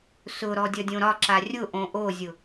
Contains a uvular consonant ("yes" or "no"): no